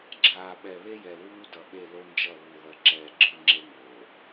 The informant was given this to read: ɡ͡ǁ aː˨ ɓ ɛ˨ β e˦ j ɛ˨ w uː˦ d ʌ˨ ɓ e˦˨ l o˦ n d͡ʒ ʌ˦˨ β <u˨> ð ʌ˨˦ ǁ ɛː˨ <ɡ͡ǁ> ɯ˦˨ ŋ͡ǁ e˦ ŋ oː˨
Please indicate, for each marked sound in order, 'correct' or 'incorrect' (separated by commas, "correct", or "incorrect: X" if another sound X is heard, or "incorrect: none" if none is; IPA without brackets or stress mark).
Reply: correct, correct